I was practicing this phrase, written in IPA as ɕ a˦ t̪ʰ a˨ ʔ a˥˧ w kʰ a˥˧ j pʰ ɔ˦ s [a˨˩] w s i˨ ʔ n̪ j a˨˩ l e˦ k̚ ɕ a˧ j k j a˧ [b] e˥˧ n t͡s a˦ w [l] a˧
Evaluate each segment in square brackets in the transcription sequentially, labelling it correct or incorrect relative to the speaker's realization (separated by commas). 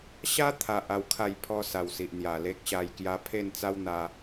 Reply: correct, incorrect, incorrect